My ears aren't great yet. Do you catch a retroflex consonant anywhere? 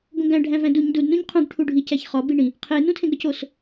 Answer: yes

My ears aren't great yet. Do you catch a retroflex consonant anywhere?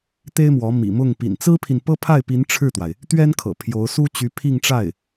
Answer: yes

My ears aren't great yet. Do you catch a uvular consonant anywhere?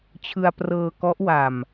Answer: no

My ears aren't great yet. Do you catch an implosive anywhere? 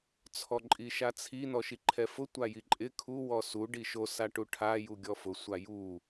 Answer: no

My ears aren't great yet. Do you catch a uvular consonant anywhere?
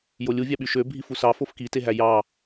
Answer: no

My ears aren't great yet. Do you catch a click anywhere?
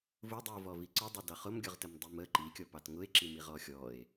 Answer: yes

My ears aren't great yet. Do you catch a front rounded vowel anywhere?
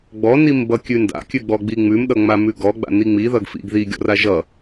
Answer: no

